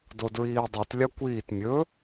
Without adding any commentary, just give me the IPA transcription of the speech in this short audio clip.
d o d ɹ iː dˤ i t lʲ a kʷ iː t mʲ ɵ

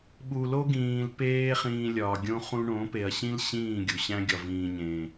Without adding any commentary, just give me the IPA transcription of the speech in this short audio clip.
ɓ u˨ l o˦ ɡ ĩː˨ l p eː˦ χ ĩː˧ lʲ ɒː˨ ɡʲ õ˦ χ ũ˧ ɳ õ˨˦ p e˨ ɐ̯ ɕ ĩ˦ l ɕ ĩː˦˨ ɡʲ u˨ ɕ æ̃˦ ɡʲ ɒ˨ v ĩː˨ ɲ ẽ˨

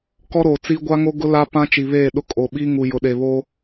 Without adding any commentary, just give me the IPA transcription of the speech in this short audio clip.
k ɔ˦ ɾ oː˨ t͡s iː˦ ɡʷ a˦ ŋ o˦ ɡ ʊ˦ l a˦ p ã˦ t͡ʃ i˨ β eː˦˨ ɗ ʊ˦ kʼ o˨ ɓ iː˦ ŋ u˨ j ʊ˨ ɗ e˨ β oː˦

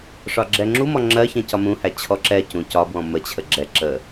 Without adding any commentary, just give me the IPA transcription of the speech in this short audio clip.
ʂ ɒ ɡ͡ǁ ɛ ŋ͡ǁ u m ɔ ŋ͡ǁ ɜ ç ɛ̃ c ɒ m ũ h æ t͡ɕʰ ɔ ǁ ɛ c ũ c ɒ b w ɔ̃ m ə t͡ɕʰ ə ɡ͡ǁ ɛ ǁ ə

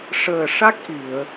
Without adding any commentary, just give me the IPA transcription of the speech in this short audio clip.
ʂ əː˨˩ ʂ a˦˥ k̚ ʔ i˨˩˨ ə̯

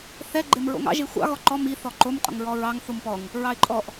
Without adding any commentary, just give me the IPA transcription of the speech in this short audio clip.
θ ɛ ɡ͡ǃ e m ɹ o̰ ŋ ɑ̰ ʒ e xʷ ɑ̰ ɣ ɔ ǃ ɔ m i θ ɔ ǃ o m qʼ o̰ ŋ ɹ ɔ ɹ ɑ ŋ θ u m p ɔ ŋ | ɹ ɑ ɪ̯ ǃʼ ɔ ʔ

